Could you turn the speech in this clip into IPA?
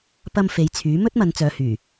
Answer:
pɐ˧m fe˨˧jt͡sʰyː˨˥ mɵ˥t̚mɐ˨˧nt͡sœː˨hyː˨˩

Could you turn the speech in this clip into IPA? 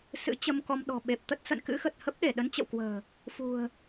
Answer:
sɨ̰˧˥t͡ɕə˧mkɔ˧m ɗɔ̤˨˩ɓe˨˩p̚t̪ə˦˥t̚ sə̰˧˨n kɨ̰˧˥xə˨˩t̚ hə˦˥p̚ɗe˧˩ ɗə˨˦nt͡ɕə̰˧˨wkwə̤ː˨˩ | fṳ˨˩ə̯

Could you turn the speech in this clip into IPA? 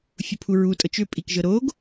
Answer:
fʲupʰuɹutʼɤt͡ʃ ʏpʼikʒɤ ɾoɡ

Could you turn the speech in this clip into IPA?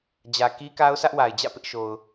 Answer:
d͡ʑä˨ki˦ka˦ʊ̯ sä˦ʔwa˨ɪ̯d͡ʑä̰˦˨ pɪ˦ʔʃo˨ʊ̯

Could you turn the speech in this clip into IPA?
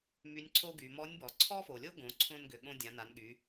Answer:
my˧˥nʲǀʰo˥ɡy˩˧ mɔ˧˥nʲbɔ˩˧ ǀʰɔ˥fo˩lʲo˥ ɡõ˩˧ǀʰõ˧n ɡʏ˩ɠõ˧ dʲã˩˧na˩˧nɠy˩˧

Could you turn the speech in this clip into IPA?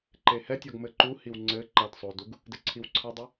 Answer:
ǃehɛtʲɔɡ mɘǃuhiw ŋ͡ǀɘ ǃɐd sˤoduɡ | dɘǀʰiwǀʰɐdˤɨ

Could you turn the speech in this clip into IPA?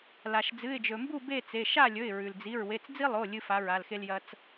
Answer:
la˩ʃ d͡zɨ˩˧˩ɪ̯d͡ʒɵ˩mbu˥˨ be˥˨t͡se˩˧˩ ʃa˥˨ lʲɵ˩˧˩ɪ̯ɹʉ˩ld͡zi˩˧˩ɹ we˩˧˩t͡sd͡zi˦lˠo˩˧˩ lʲɨ˦fa˩˥ɹa˩˧˩lxe˦l jɐ˦t͡s

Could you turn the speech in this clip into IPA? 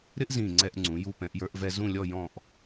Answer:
ɾɪ˥ʔzĩː˧˩ ŋ͡ǀɛ˧ʔŋ͡ǀũ˩˧ ju˧ pɛ̃˩˧ʔjə˞˧ʔvɛ˧ zũ˥˧lʲɔ˥˧ jɔ̃˥˧ʔ

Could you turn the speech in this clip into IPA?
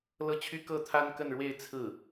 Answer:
lɤ˥t͡ɕʰy˥ kɤ˥˩t̪ʰa˥nkə˥˧nɻwe˥˧ɪ̯ t͡sʰɹ̩˥˩

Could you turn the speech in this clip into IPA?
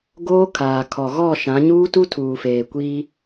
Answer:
ɡoː˦ kʰaː˨kʰɔ˨ɣɔ˦˨ ʃã˨˦ɲuː˦tu˦ tʰuː˨feː˨kʷiː˦

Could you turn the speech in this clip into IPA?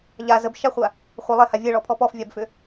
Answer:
ʎa zəbʃaχʷa | χʷə lˠeha vʲeɭɔpʰɔ pɔfvʲabfʏ

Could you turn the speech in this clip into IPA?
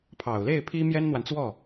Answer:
pʰɑ˨˩ʊ̯le˥˩ɪ̯ pʰi˥ mjɛ˥nn̪wa˨nt͡swɔ˥˩

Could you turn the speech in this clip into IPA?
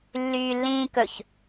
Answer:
lːyːlːĩːkɵç

